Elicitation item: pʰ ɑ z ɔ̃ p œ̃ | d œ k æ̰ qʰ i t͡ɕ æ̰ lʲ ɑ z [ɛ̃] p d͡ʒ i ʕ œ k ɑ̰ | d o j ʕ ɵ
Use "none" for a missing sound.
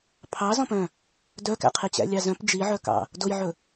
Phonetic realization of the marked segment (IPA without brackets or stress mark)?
œ̃